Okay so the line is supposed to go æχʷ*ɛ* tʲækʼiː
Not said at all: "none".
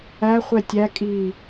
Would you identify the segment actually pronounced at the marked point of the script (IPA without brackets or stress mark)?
ɛ